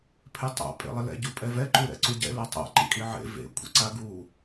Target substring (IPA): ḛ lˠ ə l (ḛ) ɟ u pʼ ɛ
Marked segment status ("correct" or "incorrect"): incorrect